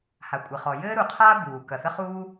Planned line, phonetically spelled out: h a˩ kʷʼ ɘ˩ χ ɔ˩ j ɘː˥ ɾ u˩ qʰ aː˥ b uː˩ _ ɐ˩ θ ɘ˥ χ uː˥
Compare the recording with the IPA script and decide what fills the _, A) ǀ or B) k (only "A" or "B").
B